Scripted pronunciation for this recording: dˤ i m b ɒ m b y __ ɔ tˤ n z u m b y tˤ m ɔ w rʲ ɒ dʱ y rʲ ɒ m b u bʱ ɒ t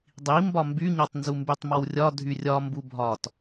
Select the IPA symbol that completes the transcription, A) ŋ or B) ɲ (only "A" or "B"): B